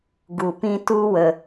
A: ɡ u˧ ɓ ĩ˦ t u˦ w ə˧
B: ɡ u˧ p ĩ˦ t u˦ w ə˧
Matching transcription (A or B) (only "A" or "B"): B